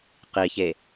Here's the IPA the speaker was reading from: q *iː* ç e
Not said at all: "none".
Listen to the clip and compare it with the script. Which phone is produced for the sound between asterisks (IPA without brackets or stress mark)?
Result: iː